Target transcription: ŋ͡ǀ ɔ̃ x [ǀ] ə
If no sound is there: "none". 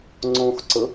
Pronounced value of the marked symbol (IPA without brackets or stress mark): ǀ